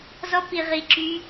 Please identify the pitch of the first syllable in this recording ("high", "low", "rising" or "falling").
high